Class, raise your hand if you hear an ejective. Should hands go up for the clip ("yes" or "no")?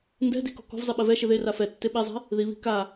no